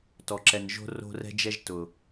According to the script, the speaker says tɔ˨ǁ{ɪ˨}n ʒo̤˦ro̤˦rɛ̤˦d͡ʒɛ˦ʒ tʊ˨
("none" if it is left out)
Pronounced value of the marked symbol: ɛ˨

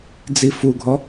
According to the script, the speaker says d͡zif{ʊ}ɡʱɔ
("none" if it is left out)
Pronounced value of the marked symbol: u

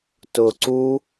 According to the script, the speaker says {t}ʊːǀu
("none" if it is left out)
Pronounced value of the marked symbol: t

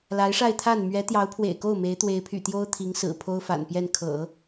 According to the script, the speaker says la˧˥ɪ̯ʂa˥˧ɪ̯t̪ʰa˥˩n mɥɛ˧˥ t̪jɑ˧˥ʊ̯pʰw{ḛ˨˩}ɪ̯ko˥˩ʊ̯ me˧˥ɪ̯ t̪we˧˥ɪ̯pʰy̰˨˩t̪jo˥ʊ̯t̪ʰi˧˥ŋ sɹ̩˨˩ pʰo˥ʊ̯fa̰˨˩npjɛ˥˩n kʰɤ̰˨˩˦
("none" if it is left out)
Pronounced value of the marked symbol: ḛ˨˩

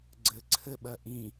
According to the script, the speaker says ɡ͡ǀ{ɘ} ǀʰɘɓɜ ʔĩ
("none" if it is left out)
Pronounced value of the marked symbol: ɘ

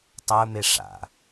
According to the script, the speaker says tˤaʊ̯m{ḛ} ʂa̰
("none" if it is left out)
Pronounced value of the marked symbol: e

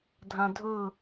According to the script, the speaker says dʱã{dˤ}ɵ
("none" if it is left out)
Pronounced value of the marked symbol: dʱ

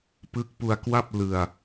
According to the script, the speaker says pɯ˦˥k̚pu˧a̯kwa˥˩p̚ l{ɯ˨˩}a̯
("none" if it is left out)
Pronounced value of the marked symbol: ɯ˧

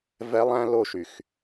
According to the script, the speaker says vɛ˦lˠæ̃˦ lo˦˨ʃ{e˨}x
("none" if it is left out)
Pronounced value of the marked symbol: y˨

